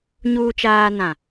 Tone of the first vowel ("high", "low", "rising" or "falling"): low